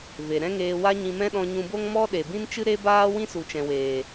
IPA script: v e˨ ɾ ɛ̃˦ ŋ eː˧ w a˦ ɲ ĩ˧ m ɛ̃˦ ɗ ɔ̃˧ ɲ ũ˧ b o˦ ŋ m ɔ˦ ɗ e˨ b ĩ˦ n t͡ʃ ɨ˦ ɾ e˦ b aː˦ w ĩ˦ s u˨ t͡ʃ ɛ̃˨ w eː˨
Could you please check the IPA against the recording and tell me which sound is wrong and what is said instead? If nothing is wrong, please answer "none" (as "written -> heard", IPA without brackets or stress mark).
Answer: none